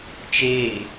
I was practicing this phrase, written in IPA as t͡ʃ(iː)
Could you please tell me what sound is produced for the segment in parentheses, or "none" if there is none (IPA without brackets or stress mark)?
eː